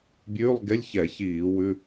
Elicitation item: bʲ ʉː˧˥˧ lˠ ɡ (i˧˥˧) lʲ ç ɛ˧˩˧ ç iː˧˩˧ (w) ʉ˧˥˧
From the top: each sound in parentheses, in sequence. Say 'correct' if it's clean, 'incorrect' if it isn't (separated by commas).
incorrect, correct